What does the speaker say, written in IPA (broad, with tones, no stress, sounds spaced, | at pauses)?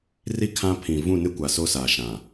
r i˦ kʰ ã˦ pʰ ĩ˨ v ũ˦˨ n ɪ˦ kʷ a˨ s o˦ s aː˨ ʃ ã˨